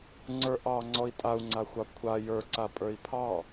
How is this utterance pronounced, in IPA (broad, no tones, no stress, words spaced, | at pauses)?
ŋ͡ǀə˞ʔɑ ŋ͡ǀɔi̯tʼau̯ŋ͡ǀaxʷɑ kʷʰa jə˞ǀapʼə˞i̯ pʰɑ